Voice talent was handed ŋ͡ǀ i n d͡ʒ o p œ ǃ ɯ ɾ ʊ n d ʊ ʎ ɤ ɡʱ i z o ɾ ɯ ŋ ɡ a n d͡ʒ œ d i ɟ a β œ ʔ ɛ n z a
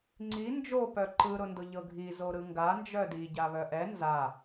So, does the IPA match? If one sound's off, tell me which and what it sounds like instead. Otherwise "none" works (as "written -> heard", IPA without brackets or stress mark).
none